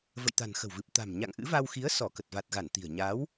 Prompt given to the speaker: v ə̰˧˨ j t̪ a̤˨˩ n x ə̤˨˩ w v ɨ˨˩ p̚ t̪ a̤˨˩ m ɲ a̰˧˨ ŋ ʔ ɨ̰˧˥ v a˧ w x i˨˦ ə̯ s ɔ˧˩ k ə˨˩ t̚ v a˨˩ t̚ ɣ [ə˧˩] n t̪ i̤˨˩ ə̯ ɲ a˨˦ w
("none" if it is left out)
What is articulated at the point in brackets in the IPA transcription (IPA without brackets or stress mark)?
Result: a˧˩